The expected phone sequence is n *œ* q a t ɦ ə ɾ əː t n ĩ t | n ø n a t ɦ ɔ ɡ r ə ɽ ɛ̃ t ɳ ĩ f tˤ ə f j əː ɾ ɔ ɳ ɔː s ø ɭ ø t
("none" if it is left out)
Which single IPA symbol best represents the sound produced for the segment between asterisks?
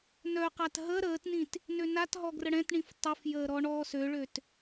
œ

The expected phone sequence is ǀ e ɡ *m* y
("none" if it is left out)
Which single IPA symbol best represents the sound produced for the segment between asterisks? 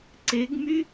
m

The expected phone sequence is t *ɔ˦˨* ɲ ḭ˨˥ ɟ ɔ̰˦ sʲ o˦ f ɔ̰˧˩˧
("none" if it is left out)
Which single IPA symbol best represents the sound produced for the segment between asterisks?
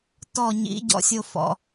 ɔ˦˨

